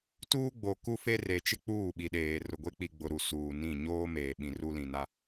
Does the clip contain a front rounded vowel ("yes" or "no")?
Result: no